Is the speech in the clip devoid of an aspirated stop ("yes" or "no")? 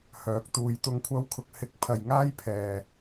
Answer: no